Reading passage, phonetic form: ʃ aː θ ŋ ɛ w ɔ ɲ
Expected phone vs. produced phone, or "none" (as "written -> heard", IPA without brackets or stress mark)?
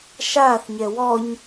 ŋ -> ɲ